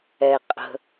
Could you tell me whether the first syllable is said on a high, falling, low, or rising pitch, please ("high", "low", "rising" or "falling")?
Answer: low